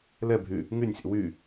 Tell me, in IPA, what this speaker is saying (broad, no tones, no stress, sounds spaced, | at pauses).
l ɛ bʱ y | ŋ y nʲ sʲ ɛ̰ w y